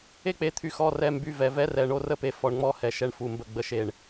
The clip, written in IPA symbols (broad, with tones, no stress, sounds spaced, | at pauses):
e˥ k͡p e˧ t̪ʰ y˧ x ɔ˧˥˧ r ɛ˧˥˧ m b y˧˥˧ v ɛ˧˩ v ɛ˥ r ɛ˧ ɳ o˥ r ə˥ p e˧ f ɔ˧ ɳ ŋ͡m ɔ˧˥˧ h ɛ˧˩ ʃ ɛ˧ ɳ f u˧˩ m b ə˧˩ ɡ͡b ə˧˩ ʃ e˧˩ ɳ